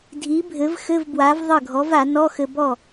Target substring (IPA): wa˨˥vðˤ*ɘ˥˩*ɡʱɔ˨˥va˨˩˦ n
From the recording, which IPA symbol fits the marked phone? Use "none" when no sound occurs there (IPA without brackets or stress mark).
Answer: ɘ˥˩